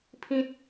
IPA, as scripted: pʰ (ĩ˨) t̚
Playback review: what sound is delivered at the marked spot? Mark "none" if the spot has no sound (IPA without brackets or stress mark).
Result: ĩ˦